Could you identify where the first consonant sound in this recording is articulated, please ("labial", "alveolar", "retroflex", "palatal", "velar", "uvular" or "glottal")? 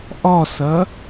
glottal